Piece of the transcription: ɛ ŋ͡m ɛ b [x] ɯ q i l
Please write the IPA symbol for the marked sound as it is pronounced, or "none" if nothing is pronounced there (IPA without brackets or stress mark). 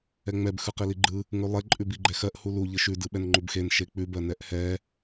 x